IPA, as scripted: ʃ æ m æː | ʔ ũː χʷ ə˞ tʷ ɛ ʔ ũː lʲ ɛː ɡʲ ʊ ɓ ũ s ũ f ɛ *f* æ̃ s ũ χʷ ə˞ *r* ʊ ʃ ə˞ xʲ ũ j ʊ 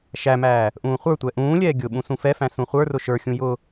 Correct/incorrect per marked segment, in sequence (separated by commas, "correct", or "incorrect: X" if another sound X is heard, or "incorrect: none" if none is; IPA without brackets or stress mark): correct, correct